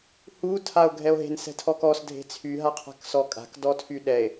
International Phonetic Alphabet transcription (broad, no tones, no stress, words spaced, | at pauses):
hu tʰao̯ɡʱɛo̯ɦe̤n sɛ̤tʰɔkɔs dʱe̤t͡sʰy ɦaqʰa̤ksɔkʼa̤k dɔtʰyɗɛe̯